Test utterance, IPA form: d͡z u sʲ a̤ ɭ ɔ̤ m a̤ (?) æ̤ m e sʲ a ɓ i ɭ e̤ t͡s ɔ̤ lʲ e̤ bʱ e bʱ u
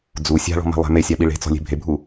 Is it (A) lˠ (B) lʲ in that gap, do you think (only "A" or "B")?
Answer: A